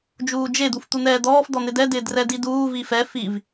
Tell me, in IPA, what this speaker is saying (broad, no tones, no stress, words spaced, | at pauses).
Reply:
d͡ʒuːd͡ʒe d̪uft̪un̪ɛːd̪ɔːf d̪ɔn̪ɪdɛ dɪːdrɛdiduː vifɛ fiv